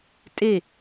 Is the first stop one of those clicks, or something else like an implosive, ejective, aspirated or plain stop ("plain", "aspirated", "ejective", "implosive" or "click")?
ejective